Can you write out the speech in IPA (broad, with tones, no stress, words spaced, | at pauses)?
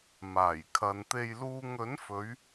maː˨˩j kʰɐ˨nt̪e˧jluː˧ŋ ɵ˨˥nfɵ˨˧ɥ